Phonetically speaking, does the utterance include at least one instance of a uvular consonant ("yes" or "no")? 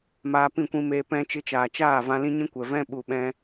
no